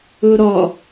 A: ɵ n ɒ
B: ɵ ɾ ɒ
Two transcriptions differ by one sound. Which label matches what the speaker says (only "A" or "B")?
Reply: B